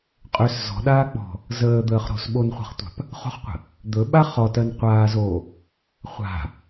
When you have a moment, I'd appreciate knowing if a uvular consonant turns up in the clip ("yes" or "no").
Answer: yes